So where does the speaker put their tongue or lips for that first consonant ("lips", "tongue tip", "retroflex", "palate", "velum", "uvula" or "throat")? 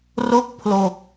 tongue tip